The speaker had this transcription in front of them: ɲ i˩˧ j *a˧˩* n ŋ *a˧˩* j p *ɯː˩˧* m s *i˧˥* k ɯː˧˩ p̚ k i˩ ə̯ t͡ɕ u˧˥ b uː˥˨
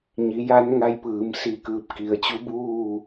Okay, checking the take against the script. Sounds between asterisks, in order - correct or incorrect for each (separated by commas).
incorrect, incorrect, correct, incorrect